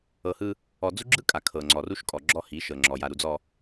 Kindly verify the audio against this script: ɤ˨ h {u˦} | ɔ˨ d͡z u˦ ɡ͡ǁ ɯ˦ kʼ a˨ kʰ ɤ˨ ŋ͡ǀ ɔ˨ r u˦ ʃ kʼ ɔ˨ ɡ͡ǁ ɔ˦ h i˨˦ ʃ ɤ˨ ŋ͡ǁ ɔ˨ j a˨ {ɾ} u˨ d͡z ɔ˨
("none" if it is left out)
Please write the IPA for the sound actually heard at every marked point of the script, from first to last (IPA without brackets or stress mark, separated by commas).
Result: ɯ˦, ɾ